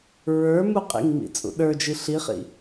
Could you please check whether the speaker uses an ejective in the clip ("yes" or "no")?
yes